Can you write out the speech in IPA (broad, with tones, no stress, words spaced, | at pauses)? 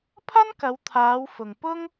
pʰɐ˥nkɐ˨˧wt̪ʰaː˨˧w fʊ˨ŋ pʊ˥ŋ